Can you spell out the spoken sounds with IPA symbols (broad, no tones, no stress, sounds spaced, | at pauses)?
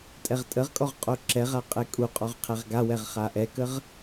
tʼ ɛ ʁ tʼ ə ʁ kʼ ɔ ʁ qʼ o ǁ ɛ ʁ a qʼ ɛ kʼ u qʼ ɔ ʁ qʰ ɛ ʁ ɡ a w ɛ ʁ χ a ʔ ɛ k ə ʁ